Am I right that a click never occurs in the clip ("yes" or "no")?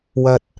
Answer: yes